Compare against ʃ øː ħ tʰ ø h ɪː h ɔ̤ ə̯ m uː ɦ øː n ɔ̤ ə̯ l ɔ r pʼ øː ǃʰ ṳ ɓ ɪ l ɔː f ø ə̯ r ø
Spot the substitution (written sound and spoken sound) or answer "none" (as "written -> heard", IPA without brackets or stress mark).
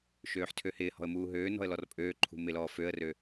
ɓ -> m